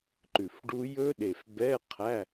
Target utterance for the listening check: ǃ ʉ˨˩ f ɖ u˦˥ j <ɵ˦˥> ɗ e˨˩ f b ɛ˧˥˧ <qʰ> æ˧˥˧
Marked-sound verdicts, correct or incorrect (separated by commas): correct, correct